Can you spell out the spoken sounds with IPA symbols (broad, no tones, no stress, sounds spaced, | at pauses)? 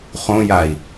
χ õ j a i̯